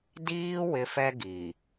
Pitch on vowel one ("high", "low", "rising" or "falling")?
high